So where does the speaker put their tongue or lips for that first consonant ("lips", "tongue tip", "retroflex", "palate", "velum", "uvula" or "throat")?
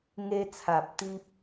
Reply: velum